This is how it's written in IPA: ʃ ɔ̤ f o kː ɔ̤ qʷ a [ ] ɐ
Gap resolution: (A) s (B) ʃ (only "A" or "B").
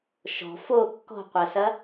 A